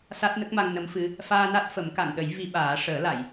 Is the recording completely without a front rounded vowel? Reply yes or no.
yes